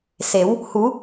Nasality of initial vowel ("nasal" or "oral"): oral